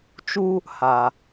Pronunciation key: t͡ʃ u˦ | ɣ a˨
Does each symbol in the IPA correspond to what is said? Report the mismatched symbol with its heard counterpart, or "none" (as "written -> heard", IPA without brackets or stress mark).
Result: ɣ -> h